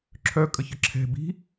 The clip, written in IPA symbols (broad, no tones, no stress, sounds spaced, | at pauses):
ǁʰ œ kʼ ə ç ə ǁʰ ɛ̤ b i̤